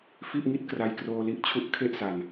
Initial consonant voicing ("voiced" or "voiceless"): voiceless